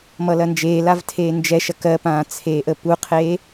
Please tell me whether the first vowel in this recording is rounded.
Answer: no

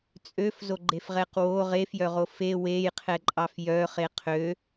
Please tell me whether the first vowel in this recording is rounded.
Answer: yes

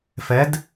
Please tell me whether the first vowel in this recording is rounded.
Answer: no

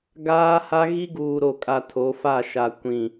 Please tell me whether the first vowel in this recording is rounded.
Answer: no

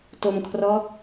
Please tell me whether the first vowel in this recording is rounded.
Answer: yes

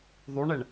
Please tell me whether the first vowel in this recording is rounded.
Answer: yes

